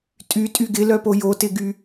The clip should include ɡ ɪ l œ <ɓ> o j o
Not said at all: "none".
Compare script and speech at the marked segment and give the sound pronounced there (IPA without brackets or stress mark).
p